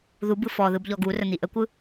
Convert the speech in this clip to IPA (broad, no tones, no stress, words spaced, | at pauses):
ðubɯ fɔðɯb ʎɔɡurə n̪iʔəkʷɯ